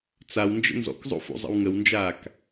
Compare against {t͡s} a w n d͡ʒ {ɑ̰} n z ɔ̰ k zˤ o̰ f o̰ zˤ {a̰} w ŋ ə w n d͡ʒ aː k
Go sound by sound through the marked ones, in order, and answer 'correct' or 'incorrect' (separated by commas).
correct, incorrect, incorrect